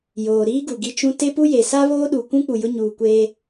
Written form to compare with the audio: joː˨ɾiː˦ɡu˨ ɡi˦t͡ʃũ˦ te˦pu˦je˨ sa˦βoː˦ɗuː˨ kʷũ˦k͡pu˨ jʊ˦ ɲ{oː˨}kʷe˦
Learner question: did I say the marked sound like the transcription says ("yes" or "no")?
no